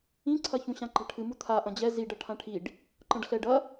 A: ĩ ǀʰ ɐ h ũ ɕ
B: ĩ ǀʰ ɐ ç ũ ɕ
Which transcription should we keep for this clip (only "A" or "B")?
B